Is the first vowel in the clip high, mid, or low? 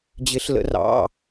high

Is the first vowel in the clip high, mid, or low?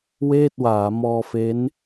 mid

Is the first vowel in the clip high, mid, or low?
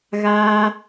low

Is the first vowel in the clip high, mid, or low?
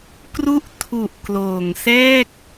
high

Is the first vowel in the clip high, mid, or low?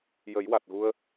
mid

